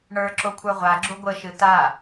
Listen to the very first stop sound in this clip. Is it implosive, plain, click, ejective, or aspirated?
click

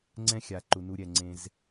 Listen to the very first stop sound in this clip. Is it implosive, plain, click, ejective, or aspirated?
click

